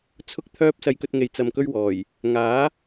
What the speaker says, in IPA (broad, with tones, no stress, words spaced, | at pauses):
t͡sʰʊ˥k̚t̪ʰœː˥p̚ sɐ˧jkɵ˧t̚ŋe˨j t͡sɐ˨mkɵ˧ɥ wɔː˨˩j | ŋaː˨˥